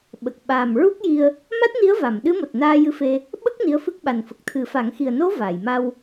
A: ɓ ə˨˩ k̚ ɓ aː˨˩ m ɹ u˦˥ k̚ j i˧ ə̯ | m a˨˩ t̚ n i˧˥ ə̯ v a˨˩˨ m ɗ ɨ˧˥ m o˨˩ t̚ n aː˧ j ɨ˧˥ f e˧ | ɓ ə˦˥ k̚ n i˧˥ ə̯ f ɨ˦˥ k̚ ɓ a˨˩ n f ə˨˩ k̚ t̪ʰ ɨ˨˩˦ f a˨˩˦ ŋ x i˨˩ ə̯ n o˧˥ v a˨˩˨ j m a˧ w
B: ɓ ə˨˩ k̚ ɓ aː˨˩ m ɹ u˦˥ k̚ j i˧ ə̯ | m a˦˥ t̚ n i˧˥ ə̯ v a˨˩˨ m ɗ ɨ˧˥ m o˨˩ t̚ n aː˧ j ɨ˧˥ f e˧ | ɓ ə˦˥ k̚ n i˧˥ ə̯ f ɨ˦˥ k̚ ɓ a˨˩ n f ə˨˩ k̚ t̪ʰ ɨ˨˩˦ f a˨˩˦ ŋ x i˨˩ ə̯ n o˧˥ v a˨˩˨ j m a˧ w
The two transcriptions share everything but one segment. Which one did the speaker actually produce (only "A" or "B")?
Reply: B